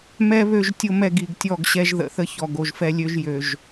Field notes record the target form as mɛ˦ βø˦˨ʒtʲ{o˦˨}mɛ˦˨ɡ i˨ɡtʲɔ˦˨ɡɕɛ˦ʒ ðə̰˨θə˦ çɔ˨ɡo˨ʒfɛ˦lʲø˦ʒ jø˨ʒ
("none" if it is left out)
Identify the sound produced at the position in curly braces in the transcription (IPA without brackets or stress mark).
o˦